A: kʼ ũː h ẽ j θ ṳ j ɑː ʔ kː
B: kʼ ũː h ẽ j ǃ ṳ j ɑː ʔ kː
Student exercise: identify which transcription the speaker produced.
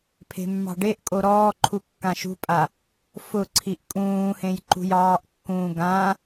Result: B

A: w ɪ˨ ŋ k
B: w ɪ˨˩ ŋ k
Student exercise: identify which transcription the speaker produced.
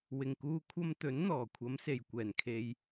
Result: B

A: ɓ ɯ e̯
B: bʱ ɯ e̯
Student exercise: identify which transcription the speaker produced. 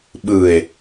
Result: A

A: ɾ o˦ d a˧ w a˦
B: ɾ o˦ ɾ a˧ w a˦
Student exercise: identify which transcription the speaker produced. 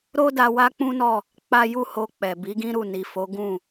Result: A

